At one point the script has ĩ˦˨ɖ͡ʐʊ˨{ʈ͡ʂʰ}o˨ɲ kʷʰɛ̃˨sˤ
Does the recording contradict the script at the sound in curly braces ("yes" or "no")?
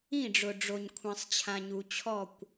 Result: yes